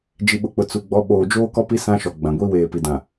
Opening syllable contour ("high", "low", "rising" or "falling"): low